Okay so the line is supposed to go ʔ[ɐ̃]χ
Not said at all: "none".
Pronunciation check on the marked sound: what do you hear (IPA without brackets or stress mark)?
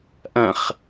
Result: ɐ̃